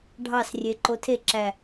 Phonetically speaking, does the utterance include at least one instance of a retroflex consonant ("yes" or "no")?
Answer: yes